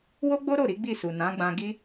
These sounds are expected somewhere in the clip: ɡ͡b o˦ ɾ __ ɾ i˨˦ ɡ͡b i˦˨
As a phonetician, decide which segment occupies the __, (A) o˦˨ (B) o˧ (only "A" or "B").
A